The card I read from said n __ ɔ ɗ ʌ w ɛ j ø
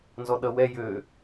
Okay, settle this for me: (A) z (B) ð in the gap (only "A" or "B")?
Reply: A